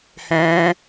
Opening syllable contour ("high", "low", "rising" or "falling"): high